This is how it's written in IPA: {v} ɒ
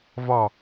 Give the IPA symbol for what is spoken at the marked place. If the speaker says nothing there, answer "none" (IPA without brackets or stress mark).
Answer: v